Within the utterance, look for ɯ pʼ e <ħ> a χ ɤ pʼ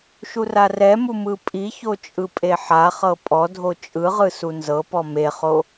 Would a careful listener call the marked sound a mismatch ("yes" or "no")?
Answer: no